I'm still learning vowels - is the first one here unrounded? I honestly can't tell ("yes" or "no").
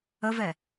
yes